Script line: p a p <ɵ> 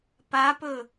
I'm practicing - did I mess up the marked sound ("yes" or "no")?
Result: no